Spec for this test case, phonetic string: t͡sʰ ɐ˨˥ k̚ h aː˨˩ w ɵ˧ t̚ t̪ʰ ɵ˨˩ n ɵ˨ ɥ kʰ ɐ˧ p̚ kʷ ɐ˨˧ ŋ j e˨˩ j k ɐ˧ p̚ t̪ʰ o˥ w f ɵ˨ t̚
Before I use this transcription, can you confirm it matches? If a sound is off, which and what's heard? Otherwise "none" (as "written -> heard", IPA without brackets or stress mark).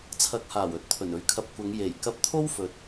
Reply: none